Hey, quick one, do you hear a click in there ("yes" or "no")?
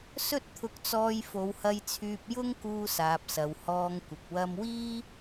no